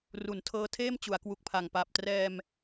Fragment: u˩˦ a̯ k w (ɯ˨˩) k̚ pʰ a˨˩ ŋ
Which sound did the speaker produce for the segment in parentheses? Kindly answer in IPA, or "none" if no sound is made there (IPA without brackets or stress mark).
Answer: u˨˩